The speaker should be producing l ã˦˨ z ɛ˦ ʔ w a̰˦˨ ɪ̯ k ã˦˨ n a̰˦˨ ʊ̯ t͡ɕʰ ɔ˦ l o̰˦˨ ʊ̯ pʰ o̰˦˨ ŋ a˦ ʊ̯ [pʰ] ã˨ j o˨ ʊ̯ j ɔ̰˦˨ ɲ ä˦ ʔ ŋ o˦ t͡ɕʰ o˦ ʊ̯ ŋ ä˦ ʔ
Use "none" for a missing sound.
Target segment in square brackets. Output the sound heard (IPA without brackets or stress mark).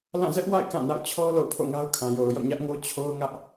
kʰ